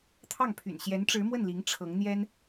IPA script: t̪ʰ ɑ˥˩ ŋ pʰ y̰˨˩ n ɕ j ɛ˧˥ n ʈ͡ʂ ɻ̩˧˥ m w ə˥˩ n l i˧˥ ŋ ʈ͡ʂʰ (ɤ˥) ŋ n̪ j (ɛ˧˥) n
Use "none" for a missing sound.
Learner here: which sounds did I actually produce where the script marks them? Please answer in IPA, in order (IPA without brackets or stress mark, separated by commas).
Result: ɤ˧˥, ɛ˥